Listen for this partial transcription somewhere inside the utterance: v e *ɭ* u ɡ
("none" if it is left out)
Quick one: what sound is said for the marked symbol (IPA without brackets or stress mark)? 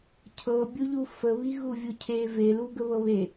l